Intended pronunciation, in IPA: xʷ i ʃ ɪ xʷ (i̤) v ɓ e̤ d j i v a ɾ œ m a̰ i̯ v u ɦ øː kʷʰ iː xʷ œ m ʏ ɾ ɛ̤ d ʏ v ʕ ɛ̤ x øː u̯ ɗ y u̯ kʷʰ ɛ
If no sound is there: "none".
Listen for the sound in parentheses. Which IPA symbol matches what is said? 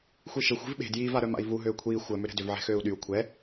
i̤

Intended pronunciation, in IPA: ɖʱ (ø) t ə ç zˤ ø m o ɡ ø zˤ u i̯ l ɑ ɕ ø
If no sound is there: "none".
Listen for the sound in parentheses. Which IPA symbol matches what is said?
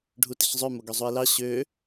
u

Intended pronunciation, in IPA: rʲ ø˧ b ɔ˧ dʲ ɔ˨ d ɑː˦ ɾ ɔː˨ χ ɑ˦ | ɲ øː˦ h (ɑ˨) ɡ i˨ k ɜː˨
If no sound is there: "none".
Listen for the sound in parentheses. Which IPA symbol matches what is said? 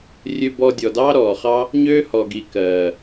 ɔ˨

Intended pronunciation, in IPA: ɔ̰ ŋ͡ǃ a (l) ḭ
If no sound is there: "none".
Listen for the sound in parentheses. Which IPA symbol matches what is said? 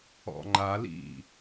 l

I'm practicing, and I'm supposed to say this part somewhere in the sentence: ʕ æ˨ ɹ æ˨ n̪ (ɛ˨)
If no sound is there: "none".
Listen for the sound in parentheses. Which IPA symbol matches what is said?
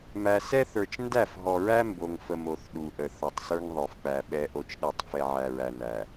æ˨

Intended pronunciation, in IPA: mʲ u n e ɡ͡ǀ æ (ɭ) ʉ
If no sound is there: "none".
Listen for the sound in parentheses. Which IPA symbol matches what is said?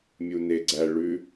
ɭ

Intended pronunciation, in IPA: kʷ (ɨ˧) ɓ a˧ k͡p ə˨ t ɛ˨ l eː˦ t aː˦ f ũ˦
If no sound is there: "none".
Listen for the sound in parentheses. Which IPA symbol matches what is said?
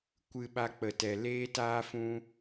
ɨ˧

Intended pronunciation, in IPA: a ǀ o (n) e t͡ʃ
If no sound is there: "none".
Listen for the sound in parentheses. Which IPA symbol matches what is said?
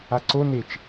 n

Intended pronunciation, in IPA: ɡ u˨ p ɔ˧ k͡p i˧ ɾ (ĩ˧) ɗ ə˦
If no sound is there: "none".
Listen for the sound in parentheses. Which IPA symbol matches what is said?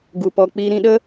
ĩ˧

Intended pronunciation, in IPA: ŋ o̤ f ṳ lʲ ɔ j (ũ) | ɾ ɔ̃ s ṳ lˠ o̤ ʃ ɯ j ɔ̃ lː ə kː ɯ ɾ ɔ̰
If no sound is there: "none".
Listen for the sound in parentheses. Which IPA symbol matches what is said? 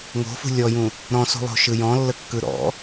ũ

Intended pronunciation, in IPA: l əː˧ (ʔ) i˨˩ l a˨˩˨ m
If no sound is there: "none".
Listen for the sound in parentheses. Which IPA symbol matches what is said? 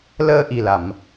ʔ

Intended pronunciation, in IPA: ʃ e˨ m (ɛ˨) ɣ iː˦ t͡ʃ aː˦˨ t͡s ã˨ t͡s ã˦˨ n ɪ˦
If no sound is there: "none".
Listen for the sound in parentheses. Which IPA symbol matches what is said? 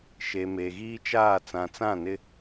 e˨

